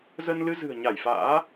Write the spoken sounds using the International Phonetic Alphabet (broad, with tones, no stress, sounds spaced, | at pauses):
z ə˧ n l ɨ˧ z ɨ̤˨˩ ə̯ ɲ a˧˩ j f a̰ː˧˥